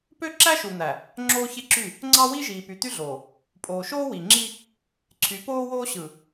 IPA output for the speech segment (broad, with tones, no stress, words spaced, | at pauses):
pø˦ ǁæ˦ʃu˨n̪æ˨ | ŋ͡ǁoː˦çe˦ ǁy˦˨ | ŋ͡ǀɑ˦wi˦ʒiː˨ py˨t̪y˦ɮoː˨ | pʼoː˨ʃoː˦wi˨ŋ͡ǁi˦ | ǀʰy˨˦poː˦woː˦ ɕɯ˨